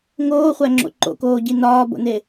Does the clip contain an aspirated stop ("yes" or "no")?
no